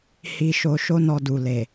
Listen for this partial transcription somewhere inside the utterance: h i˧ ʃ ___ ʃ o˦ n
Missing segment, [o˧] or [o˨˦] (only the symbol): o˧